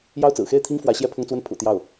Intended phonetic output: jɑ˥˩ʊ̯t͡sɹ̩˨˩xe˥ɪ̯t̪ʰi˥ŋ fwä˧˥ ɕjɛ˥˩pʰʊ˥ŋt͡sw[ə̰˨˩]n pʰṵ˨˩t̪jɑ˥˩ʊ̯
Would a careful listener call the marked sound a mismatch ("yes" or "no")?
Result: yes